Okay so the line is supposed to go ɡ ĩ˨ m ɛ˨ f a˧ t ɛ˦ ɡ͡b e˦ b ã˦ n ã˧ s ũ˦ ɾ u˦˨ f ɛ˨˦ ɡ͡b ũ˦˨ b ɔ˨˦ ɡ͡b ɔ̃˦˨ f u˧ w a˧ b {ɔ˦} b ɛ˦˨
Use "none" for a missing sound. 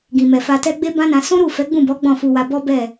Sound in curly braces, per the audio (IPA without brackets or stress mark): ɔ˦